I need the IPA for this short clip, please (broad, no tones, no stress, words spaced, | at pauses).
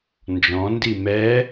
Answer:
nd͡ʒɔ̃ ndimɛ